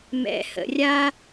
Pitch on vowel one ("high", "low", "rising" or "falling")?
low